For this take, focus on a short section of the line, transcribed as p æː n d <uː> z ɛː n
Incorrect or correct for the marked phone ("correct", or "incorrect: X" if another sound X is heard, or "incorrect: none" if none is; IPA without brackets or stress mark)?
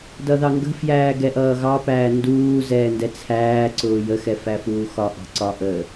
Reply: correct